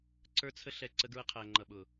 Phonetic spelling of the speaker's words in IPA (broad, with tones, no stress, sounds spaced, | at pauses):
ǀ ə˞˧ t͡sʰ ə˧ ɬ ɛ˨ ǀ ə˧ ɡ ɹ ə˧ qʰ æ˨ ŋ͡ǃ ʌ˨ ɓ ʊ˨